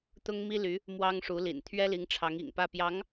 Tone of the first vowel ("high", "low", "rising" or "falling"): high